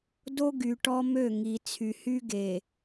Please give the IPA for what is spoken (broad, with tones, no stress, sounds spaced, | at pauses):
d o˦ ɡ y˨ ʈ ɔ˦ m ø˦˨ ŋ i˨ t͡sʰ y˨ h y˦ ɡ e˨